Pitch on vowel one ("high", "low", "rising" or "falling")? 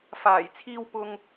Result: low